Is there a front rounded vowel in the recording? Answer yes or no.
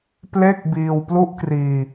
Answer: no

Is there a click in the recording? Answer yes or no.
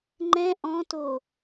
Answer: yes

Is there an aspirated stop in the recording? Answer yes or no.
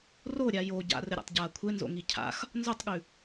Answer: yes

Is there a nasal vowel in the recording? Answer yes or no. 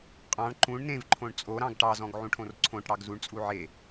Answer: yes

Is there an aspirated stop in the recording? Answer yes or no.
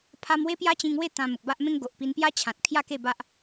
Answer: yes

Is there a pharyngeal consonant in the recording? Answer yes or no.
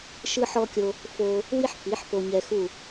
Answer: yes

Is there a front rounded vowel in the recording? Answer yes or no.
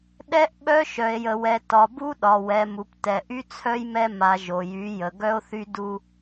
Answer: yes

